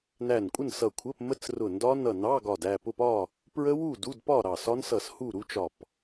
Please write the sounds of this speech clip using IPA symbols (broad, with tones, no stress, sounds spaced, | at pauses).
n æ˧˩ n kʷʼ ə˥˨ n s ʌ˧˩ kʷʰ ə˧˥˧ p m ə˦˥ t͡s r ʊ˧˩ n d ɒ˦˥ n ʌ˧˩ n ɑ˧˥˧ ɡ ɒ˧˩ d æ˥˨ p ʊ˥˨ p ɒ˥˨ | p ɹ ə˦˥ w u˥˨ d u˧˥˧ d p ɒ˥˨ ɾ ɑ˧˩ s ɒ˦˥ n s ʌ˧˩ s h u˥˨ ɾ u˦˥ t͡ʃ ɒ˧˩ p